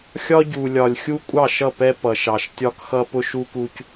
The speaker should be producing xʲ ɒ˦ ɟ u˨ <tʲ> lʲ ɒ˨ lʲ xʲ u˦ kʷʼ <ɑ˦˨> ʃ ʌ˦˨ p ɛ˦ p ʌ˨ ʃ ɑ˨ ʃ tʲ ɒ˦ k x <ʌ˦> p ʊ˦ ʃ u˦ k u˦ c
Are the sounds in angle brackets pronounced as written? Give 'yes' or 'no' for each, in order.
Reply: no, yes, yes

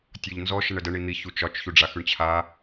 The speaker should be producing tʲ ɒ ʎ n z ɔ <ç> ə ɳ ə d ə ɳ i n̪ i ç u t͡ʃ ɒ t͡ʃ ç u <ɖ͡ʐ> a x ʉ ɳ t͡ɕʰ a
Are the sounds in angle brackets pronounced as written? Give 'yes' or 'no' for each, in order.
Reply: no, yes

